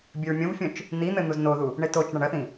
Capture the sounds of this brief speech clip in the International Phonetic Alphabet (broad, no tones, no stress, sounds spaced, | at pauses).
bʲ ɘ ɹ mʲ õ v fʲ õ t͡ʃ | n̪ i n̪ ɘ n̪ u z n o ð u | ɳ e t o t͡ʃ ɳ ɐ ɳ ɐ θ ĩ